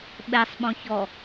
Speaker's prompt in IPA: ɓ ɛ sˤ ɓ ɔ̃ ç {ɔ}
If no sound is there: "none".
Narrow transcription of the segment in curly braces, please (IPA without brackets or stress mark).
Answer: ɔ